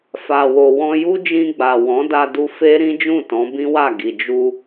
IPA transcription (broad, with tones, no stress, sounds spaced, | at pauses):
f a˨ w o˨ w ɔ̃˧ j u˦ d͡ʒ ĩ˧ ɡ͡b a˨ w ɔ̃˨˦ d a˧ d u˧ f e˦ ɾ ĩ˦ d͡ʒ ũ˦˨ t ɔ̃˨˦ b ĩ˦ w a˦˨ ɡ i˨ d͡ʒ u˧